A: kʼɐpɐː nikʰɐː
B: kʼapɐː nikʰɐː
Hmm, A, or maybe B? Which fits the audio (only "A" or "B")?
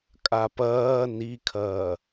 B